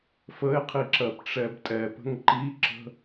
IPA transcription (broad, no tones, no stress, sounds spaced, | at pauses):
f ə e̯ qʰ i ǁ ɜ p ʈ͡ʂ ɛ b tʼ ɛ p ə̤ ŋ ǃ i ǁ ə̤